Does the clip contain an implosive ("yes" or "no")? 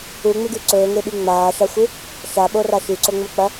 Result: yes